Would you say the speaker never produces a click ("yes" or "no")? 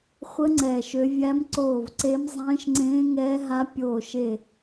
no